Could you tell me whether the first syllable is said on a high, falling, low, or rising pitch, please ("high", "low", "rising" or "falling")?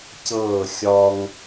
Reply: falling